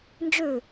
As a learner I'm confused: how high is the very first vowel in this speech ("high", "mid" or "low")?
high